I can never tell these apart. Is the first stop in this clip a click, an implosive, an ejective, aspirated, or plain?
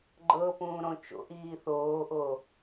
click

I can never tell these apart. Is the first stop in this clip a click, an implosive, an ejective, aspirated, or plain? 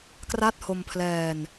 plain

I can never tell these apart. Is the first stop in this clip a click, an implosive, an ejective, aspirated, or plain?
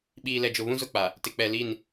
implosive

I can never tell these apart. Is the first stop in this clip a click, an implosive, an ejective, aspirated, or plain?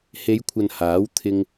aspirated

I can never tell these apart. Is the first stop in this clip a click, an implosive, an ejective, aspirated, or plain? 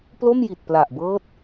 plain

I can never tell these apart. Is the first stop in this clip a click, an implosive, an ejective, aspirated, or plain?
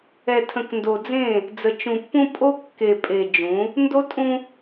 aspirated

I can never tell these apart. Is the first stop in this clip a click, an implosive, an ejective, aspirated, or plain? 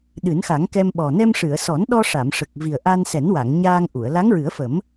implosive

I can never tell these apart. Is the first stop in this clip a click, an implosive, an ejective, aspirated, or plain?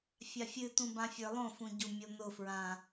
plain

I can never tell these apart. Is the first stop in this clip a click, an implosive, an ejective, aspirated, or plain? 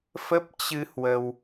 plain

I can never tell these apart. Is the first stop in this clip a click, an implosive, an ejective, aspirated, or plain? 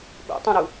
implosive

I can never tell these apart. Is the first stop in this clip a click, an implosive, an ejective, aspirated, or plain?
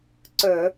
click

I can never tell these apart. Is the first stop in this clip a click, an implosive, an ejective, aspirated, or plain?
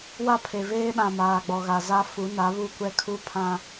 aspirated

